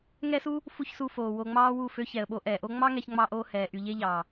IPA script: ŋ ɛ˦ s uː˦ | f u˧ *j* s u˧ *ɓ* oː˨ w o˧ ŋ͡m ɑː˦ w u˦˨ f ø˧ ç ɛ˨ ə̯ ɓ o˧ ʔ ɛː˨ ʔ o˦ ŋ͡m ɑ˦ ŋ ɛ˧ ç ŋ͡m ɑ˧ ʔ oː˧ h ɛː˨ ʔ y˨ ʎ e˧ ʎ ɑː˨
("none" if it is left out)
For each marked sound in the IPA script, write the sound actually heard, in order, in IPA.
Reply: ç, f

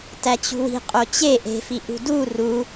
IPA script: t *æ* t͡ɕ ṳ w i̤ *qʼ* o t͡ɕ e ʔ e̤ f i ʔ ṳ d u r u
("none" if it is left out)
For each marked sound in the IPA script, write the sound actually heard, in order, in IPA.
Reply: æ, qʼ

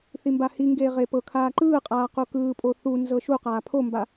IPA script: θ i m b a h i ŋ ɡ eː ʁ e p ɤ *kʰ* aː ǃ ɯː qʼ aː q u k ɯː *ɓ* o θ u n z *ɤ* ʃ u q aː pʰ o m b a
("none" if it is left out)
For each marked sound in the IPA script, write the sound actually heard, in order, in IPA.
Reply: kʰ, pʼ, ɤ

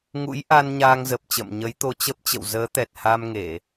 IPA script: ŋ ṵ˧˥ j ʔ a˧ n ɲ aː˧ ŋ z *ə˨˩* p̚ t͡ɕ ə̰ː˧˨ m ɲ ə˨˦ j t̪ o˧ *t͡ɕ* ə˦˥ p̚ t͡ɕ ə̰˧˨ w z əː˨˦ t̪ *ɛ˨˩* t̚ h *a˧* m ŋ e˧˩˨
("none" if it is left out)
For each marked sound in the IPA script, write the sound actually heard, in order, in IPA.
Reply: ə˨˩, t͡ɕ, ɛ˨˩, a˧

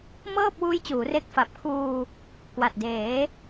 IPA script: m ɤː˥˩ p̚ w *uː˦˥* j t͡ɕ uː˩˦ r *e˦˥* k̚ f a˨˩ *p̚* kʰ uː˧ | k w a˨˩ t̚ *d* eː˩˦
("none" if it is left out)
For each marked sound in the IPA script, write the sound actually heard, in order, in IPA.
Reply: uː˦˥, e˦˥, p̚, d

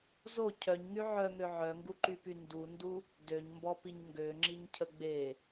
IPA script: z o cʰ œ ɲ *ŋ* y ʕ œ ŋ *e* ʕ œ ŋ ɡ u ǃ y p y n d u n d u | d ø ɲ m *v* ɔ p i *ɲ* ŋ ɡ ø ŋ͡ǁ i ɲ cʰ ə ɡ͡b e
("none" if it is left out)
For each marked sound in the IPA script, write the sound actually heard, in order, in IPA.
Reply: ŋ, ø, b, ɲ

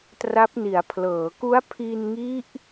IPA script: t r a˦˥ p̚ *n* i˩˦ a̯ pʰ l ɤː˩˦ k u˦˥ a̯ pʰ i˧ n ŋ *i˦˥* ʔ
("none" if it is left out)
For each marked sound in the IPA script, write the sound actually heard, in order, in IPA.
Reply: n, i˦˥

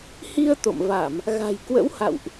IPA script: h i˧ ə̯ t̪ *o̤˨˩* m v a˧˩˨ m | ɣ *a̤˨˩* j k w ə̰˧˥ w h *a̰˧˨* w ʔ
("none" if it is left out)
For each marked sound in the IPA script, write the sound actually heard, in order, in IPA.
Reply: o̰˧˨, a̤˨˩, a̰˧˨

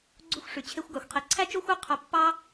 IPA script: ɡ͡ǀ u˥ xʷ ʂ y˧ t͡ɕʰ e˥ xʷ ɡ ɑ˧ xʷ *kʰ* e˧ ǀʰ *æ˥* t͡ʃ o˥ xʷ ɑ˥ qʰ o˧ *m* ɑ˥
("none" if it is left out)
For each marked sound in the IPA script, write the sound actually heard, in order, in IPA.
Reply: qʰ, æ˥, pː

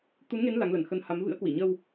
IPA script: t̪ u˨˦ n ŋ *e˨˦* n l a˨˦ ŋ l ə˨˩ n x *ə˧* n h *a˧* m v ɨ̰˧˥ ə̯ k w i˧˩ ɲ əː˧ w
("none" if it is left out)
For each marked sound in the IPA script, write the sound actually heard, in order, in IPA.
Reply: e˨˦, ə˧, a˨˦

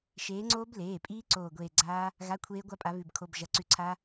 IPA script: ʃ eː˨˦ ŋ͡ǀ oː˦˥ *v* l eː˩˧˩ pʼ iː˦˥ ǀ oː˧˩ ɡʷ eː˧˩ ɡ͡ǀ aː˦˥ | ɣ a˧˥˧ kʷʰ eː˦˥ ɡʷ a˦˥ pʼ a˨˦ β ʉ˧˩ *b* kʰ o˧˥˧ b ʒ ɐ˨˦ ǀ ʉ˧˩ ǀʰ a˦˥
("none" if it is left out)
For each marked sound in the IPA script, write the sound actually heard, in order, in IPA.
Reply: b, b

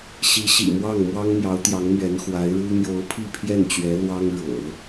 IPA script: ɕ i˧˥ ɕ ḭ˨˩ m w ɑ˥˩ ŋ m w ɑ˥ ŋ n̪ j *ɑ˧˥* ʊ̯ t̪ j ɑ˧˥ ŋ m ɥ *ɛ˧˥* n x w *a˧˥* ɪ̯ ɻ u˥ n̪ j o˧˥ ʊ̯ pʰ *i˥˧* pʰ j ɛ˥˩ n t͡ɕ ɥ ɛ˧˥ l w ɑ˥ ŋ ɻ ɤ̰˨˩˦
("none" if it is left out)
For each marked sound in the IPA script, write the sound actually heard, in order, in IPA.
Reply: ɑ˧˥, ɛ˧˥, a˧˥, i˥˧

